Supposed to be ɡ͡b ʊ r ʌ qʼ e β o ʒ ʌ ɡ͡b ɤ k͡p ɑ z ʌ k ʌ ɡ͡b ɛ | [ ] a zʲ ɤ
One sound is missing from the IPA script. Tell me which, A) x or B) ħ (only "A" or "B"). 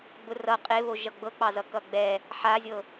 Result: B